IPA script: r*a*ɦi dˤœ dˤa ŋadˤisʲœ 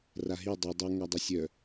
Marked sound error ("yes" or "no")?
no